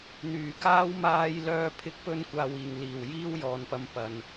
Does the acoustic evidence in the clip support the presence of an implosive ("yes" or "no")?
no